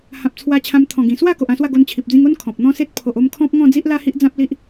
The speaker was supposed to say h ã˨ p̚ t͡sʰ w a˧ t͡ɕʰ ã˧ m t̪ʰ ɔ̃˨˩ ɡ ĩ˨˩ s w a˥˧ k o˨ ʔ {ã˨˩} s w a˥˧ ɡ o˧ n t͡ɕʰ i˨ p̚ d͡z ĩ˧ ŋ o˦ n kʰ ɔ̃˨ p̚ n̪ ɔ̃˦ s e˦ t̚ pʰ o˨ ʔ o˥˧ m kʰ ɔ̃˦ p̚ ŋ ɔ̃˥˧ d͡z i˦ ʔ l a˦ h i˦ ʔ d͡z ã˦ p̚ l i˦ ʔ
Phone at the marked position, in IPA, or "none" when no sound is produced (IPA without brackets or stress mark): ã˥˧